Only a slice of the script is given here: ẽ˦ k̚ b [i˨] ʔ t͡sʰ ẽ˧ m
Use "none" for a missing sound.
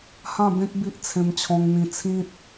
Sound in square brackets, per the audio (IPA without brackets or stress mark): i˦